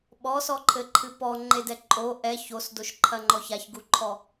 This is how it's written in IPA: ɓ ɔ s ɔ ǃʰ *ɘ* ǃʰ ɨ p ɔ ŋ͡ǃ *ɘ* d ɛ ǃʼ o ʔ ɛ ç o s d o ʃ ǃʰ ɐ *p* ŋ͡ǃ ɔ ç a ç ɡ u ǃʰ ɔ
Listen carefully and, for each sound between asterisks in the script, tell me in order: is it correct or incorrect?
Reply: correct, incorrect, incorrect

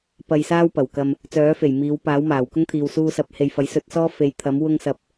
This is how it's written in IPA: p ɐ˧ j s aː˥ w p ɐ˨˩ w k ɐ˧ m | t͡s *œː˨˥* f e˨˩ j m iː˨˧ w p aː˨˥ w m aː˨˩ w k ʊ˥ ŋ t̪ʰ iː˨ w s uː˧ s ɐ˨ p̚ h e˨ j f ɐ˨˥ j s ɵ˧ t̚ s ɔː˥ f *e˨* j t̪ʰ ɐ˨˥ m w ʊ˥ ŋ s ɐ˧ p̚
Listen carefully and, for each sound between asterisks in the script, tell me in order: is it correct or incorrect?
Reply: correct, incorrect

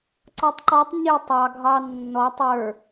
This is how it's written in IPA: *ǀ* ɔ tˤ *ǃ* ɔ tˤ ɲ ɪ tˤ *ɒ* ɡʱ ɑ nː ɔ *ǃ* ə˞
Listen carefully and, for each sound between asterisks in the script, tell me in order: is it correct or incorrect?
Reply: correct, correct, incorrect, incorrect

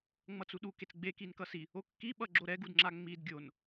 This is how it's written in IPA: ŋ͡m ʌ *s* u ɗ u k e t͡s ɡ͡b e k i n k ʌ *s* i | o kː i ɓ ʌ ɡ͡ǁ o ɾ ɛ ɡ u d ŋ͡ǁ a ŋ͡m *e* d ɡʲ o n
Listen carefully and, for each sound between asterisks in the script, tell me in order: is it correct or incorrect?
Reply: incorrect, correct, incorrect

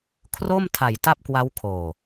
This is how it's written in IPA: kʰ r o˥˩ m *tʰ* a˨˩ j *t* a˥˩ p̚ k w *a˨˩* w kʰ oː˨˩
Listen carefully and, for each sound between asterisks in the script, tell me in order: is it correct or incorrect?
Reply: correct, correct, incorrect

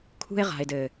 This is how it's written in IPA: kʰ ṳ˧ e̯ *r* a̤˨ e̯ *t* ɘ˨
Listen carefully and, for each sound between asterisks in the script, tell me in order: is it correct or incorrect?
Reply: incorrect, incorrect

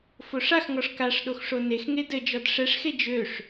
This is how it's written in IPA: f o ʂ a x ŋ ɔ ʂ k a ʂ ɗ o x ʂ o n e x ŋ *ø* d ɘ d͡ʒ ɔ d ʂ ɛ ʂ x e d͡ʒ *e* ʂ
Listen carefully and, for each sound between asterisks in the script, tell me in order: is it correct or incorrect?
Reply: incorrect, incorrect

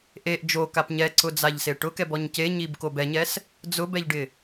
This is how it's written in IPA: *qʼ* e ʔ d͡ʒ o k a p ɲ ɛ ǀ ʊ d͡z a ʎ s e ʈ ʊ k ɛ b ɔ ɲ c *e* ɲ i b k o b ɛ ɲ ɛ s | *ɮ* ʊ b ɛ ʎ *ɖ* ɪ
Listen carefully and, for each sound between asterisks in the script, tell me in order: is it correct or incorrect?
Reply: incorrect, correct, incorrect, correct

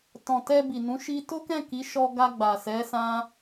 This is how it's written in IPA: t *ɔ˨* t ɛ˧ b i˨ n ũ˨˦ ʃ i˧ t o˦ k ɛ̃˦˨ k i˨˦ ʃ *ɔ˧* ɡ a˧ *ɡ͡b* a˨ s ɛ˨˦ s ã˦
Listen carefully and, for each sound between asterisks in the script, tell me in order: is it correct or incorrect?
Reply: incorrect, correct, correct

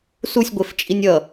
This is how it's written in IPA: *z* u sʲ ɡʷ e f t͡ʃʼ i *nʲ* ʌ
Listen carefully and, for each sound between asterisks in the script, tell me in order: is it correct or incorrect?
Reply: incorrect, correct

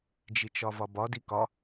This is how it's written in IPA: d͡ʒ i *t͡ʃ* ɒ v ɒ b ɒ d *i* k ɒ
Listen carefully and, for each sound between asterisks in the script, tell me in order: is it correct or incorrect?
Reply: correct, correct

